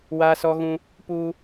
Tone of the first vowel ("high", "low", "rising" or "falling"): high